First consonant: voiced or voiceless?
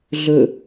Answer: voiced